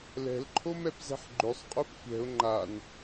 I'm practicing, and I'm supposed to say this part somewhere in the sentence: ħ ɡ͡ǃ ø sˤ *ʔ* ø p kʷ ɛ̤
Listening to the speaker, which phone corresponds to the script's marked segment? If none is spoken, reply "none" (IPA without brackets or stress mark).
qʼ